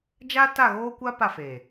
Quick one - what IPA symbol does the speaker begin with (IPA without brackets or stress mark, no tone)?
d͡ʒ